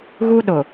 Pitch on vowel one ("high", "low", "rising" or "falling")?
high